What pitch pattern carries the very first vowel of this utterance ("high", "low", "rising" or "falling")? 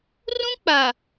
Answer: high